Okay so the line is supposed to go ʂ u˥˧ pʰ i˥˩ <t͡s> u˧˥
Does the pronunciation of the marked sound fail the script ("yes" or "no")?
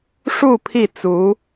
no